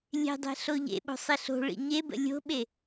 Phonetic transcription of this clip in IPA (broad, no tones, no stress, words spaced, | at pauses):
lʲe̤dˤe̤ ɬoʎḛɓo̤ sˤiɬo̤ɭḭ ɲebə̰ lʲo̤ɓe